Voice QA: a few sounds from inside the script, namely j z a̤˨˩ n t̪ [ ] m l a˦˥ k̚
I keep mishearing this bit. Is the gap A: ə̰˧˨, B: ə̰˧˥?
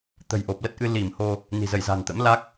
B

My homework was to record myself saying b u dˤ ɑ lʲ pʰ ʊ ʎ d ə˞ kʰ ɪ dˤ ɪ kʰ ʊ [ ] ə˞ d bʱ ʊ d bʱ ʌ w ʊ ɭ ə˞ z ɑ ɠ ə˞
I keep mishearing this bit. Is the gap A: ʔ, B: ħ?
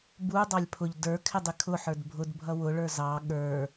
B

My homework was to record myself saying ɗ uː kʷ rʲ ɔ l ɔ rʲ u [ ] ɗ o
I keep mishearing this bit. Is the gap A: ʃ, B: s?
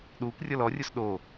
B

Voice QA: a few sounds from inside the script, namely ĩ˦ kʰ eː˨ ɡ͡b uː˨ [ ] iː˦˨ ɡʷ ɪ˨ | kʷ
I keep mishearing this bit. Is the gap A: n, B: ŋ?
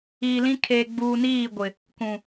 A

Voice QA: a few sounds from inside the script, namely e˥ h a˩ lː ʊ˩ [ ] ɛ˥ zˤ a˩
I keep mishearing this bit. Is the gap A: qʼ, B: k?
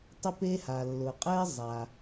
A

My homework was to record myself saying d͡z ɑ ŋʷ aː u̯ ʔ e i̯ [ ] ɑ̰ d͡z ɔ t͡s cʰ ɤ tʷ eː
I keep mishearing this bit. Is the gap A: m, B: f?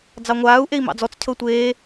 A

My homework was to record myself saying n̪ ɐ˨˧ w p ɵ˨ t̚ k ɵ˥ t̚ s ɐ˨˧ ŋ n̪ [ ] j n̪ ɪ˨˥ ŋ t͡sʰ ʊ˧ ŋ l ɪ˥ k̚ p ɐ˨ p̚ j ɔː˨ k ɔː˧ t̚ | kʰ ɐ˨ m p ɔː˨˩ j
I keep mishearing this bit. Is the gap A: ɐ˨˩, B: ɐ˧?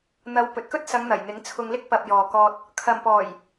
A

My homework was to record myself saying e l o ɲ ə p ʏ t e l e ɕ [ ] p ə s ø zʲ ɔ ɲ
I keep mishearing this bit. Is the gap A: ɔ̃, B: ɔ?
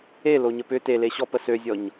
B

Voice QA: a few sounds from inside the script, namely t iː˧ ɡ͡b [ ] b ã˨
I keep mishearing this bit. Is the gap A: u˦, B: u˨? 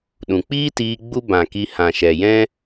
A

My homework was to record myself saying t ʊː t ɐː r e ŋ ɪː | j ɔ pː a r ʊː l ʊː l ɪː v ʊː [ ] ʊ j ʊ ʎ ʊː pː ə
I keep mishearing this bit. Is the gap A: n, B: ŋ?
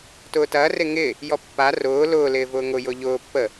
B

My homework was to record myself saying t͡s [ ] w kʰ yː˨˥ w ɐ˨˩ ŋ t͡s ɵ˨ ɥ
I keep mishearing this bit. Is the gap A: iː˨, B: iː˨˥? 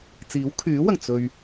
B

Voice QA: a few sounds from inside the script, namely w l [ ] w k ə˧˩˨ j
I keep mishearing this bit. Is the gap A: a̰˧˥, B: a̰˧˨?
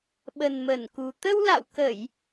B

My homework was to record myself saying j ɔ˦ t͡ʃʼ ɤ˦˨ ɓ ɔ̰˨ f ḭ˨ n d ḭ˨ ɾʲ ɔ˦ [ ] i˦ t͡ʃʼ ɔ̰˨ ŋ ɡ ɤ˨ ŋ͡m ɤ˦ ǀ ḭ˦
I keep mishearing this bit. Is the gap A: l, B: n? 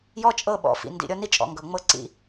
B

